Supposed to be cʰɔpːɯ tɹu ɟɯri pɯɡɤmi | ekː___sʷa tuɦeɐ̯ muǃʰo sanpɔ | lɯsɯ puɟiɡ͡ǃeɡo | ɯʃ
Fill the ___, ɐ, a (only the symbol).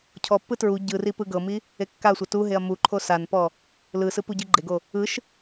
a